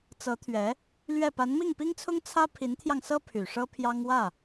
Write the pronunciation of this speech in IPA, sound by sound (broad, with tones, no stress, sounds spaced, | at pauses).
t͡s ɤ˧˥ t̪ʰ ɥ ɛ˧˥ | l ɥ ɛ˥˩ p a˧˥ n m i˥˩ ŋ p i˥ ŋ t͡sʰ ʊ˥ ŋ t͡sʰ ä˥ pʰ i˧˥ n t̪ʰ j ɑ˧ ŋ s ɤ˥ pʰ y˨˩ ʂ ɤ˥ pʰ j ɑ˥ ŋ w ä˥˩